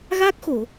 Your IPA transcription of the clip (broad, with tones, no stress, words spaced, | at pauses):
ɣaː˦˥k̚xo˨˩˨